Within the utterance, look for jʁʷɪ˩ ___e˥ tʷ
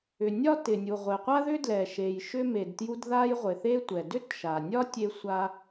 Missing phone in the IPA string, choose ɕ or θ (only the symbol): θ